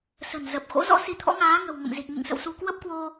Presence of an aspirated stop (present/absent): present